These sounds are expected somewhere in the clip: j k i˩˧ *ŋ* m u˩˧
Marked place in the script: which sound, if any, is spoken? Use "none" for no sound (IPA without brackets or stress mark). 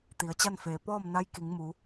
ŋ